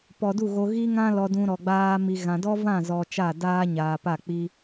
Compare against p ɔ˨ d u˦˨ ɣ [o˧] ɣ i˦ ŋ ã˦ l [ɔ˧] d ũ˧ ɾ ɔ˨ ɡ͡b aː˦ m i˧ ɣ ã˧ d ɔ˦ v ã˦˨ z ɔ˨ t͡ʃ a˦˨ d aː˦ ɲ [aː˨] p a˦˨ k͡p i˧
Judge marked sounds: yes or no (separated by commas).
yes, yes, yes